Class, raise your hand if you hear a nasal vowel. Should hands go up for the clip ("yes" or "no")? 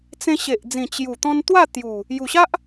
yes